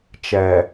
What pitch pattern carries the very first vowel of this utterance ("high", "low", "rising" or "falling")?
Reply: low